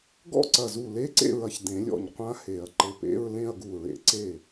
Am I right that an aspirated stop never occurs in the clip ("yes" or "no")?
yes